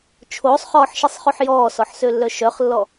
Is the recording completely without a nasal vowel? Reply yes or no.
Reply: yes